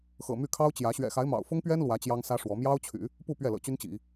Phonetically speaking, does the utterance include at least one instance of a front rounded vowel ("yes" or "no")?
yes